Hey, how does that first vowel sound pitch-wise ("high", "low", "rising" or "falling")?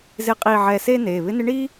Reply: rising